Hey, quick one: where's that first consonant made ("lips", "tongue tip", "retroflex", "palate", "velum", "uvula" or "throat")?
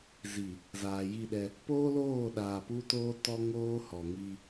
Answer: tongue tip